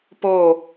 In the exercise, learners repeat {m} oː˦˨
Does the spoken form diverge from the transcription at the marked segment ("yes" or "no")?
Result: yes